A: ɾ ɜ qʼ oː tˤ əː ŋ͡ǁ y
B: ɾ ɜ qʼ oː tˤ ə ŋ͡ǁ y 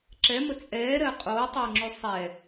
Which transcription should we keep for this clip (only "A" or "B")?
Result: A